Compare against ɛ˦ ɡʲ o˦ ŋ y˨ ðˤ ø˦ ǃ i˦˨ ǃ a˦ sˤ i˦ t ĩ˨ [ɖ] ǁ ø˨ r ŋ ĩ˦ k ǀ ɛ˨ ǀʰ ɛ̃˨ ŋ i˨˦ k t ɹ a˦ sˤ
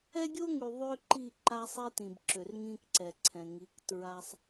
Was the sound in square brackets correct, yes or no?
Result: no